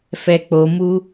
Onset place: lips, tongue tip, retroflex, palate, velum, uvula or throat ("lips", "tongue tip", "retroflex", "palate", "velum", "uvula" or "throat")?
lips